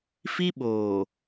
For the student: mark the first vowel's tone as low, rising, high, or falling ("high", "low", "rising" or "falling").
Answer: high